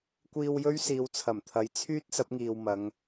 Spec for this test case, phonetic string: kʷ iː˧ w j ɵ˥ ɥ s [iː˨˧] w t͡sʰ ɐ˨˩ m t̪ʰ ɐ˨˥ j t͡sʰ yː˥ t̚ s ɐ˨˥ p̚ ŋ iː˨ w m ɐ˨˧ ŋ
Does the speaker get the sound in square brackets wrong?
no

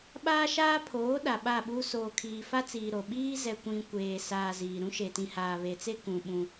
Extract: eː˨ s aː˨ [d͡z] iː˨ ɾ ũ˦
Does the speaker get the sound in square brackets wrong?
yes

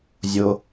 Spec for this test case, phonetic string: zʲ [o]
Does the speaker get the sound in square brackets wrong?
no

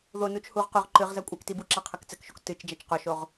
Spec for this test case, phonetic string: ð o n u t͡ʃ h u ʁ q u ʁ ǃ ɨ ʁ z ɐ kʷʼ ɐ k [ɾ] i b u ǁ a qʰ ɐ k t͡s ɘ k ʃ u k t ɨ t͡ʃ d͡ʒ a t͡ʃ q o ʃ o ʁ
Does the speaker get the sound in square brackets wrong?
yes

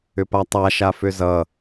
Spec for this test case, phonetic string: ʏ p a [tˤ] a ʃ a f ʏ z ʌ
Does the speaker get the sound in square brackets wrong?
no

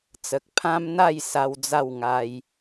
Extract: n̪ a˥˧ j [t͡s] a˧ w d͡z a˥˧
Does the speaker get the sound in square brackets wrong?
yes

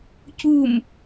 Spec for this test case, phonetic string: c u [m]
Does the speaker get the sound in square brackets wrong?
no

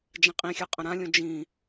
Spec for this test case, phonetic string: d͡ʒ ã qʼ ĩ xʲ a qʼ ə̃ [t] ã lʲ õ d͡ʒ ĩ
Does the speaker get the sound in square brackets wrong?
yes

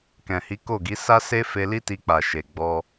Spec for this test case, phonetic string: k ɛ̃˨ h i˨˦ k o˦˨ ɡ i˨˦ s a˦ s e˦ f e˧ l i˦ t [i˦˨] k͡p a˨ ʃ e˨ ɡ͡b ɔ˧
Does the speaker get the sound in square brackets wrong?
yes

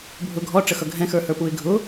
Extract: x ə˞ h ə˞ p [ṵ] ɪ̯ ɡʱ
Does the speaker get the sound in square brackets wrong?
yes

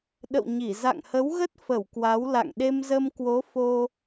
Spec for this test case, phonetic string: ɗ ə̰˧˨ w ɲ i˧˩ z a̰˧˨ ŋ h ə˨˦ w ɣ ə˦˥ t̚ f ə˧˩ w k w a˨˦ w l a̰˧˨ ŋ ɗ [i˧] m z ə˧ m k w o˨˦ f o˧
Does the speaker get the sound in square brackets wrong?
yes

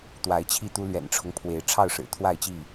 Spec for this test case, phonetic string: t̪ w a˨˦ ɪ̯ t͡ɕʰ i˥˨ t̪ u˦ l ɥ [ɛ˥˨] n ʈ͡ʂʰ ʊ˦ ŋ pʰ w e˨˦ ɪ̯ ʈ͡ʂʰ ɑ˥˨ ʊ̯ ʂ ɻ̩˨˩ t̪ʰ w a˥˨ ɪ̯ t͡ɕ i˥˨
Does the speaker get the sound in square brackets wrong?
yes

